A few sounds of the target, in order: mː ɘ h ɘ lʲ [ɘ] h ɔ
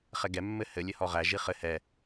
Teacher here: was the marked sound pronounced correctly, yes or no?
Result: yes